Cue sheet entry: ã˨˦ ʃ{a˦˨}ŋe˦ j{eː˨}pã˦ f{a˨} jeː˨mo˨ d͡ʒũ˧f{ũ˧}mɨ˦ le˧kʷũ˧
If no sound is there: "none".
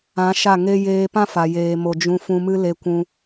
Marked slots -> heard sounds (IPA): a˦˨, eː˧, a˨, ũ˧

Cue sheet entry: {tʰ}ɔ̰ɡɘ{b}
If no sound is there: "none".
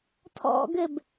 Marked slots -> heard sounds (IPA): tʰ, b

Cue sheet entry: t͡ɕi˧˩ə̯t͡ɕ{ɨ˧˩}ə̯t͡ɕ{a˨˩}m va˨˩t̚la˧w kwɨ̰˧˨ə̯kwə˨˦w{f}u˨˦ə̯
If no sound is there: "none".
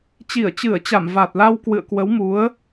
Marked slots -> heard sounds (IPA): ɨ˧˩, a˧˩, m

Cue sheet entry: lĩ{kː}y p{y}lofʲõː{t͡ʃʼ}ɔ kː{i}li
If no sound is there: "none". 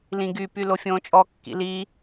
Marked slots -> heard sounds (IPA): ɡ, y, t͡ʃʼ, ḭ

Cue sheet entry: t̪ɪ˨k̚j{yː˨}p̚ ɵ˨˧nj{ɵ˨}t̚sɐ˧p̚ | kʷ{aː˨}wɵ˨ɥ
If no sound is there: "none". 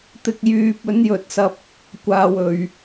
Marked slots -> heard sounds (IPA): yː˨, ɵ˨, aː˨

